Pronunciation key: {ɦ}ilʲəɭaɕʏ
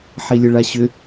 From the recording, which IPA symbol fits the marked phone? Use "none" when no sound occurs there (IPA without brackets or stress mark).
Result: ħ